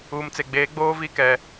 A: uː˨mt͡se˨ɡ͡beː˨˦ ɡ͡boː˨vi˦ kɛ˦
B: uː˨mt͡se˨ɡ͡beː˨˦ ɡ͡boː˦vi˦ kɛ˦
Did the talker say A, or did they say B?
B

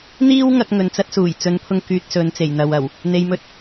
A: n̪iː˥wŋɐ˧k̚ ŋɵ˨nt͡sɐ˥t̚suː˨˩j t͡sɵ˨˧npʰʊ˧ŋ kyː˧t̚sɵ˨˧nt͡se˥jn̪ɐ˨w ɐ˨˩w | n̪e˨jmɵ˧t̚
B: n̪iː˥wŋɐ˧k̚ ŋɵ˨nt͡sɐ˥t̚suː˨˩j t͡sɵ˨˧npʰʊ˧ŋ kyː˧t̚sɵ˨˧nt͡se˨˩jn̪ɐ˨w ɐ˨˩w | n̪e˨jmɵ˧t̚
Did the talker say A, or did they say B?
B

